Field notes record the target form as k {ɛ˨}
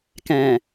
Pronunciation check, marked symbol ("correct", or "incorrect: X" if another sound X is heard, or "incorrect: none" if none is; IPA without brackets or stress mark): incorrect: ɛ̃˨